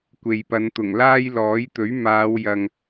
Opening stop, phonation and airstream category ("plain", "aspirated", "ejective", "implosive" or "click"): plain